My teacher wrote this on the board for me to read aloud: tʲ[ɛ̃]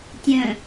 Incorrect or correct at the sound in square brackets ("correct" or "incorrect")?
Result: incorrect